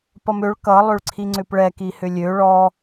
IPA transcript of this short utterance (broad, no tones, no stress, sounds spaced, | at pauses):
p ʌ m ø ɭ k ʌ lˠ ø ɭ ǀʰ i ŋ͡ǀ ʏ p ɭ ɛ k i h ʏ lʲ ø ɭ ɔ